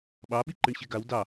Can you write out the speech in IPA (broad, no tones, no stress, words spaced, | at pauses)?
ɓɑɓiǃɨɳ ɕeɡaw dɑ